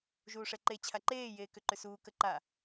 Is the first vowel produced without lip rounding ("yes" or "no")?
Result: no